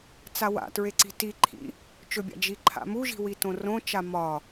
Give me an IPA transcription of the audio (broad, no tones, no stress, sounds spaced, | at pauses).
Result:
t͡s a w a̰ t ɹ e ǀ i̤ t i ǃʰ ḭ | t͡ʃ ɵ bʲ a̰ d͡ʒ i ǃʰ a̰ m u ʒ i̤ w i t õ r õ t͡ʃ a m ɒ